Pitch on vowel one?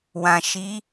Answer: low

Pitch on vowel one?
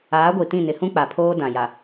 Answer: rising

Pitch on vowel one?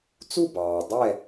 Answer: falling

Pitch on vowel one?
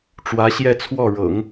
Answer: rising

